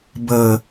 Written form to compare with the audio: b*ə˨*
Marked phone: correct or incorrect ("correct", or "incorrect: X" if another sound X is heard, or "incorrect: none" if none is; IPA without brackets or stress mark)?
correct